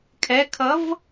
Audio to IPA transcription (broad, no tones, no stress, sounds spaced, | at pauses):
kʰ ɛ kʰ ʌ v